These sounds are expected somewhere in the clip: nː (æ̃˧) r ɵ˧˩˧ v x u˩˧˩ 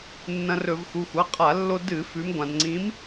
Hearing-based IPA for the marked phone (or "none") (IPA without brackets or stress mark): ɐ̃˧